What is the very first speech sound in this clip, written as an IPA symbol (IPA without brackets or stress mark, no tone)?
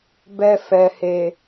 b